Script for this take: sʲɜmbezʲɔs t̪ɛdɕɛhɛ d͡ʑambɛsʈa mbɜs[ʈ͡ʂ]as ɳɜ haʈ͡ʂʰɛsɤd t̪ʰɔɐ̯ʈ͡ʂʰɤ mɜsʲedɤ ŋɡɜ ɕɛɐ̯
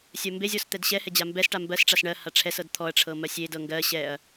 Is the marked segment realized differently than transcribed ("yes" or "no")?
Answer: no